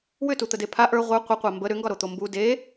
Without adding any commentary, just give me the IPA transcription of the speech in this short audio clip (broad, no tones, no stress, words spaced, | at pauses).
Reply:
wʏtut̪əde pʰa ʔə˞ ʁʷə˞ qʷəqʷa mbə ɾʏŋɡɒɾot̪o mbu de